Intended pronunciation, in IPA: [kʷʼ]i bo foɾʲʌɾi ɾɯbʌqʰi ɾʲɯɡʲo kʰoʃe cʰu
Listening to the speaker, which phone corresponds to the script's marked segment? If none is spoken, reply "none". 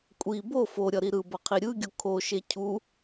kʷʼ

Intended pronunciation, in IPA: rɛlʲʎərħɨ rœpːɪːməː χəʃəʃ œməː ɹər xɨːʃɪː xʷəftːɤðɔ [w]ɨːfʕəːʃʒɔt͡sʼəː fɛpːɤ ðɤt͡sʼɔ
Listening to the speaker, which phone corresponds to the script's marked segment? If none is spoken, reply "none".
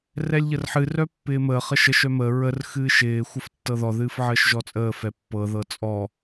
ð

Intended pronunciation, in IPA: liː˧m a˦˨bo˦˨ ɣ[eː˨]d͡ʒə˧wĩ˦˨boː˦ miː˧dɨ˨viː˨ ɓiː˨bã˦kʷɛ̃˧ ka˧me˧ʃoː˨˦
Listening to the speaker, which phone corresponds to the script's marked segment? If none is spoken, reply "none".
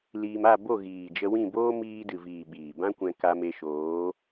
iː˨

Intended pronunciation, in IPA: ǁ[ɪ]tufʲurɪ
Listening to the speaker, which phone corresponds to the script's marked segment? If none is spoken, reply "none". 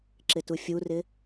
ɪ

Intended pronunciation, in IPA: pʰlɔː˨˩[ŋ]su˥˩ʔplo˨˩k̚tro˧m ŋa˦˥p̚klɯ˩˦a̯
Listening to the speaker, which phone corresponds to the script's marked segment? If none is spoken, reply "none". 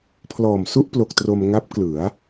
m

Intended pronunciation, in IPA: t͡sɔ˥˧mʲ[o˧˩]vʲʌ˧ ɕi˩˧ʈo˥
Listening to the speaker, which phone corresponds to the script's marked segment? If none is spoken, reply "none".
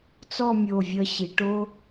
o˧˩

